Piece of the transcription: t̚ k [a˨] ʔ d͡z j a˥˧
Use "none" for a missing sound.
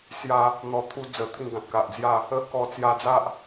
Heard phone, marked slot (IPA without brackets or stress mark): a˨